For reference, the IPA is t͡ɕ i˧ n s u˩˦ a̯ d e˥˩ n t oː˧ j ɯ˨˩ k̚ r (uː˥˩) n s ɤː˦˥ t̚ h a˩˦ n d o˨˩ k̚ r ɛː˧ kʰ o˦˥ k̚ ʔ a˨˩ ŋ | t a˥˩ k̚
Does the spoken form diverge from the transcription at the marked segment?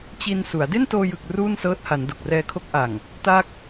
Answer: no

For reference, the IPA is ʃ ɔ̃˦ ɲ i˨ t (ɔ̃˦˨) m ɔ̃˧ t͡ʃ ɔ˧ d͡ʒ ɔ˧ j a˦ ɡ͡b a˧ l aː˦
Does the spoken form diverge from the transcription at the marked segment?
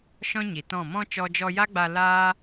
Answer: no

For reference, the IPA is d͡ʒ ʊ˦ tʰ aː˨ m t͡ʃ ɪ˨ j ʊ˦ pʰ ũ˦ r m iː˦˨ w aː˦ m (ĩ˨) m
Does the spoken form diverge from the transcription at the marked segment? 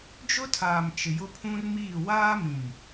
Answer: no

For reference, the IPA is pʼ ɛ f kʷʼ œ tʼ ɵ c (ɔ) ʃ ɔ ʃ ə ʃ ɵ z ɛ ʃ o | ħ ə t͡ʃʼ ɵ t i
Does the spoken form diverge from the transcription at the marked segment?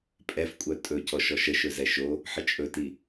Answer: no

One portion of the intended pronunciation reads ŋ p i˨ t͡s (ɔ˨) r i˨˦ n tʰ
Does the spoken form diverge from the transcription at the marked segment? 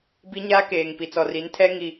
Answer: no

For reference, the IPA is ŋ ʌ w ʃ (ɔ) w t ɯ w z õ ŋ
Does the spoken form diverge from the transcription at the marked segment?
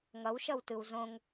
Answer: yes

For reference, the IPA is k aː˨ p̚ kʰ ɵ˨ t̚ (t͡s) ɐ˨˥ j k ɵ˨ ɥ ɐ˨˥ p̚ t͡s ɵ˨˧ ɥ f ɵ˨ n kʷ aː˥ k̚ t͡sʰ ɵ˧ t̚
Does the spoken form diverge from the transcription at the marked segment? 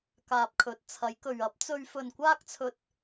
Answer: yes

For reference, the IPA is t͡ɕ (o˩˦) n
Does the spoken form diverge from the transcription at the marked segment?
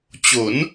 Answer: no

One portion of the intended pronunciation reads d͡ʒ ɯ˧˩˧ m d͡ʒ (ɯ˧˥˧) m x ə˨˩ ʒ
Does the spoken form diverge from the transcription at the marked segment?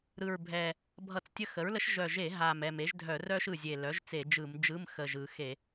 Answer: no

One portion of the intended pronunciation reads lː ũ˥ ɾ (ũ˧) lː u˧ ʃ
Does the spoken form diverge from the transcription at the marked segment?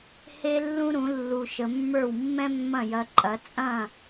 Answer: yes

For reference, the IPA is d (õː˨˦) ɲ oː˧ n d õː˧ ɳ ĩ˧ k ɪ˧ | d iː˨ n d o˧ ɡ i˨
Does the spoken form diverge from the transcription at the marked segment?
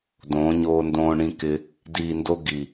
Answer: no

